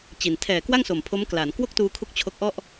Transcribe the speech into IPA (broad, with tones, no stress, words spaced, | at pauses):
t͡ɕi˨˩n tʰɛː˨˩kwa˥˩ŋso˨˩m pʰo˦˥mklaː˩˦n kwo˥˩k̚tuː˧kʰu˦˥k̚ t͡ɕʰo˦˥k̚ʔɔ˥˩ʔ